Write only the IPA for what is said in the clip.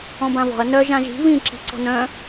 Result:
ɔ̃ b ã v ɔ̤ ɐ̯ n œ ʒ ã ʒ i̤ β ĩ ǁ i̤ ǀ ɔ̤ n œ̃

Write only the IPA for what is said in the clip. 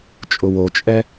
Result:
t͡ʃʼ ʊ w o t͡ʃʼ ɛ

